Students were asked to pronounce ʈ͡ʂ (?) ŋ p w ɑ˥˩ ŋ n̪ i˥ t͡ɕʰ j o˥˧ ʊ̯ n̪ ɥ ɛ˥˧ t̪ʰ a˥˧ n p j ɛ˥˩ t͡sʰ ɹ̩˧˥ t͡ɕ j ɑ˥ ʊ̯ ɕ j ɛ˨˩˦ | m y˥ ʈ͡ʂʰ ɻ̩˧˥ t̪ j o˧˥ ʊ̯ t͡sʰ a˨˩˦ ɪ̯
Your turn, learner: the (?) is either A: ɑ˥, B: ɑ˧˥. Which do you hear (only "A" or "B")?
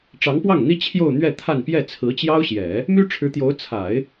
B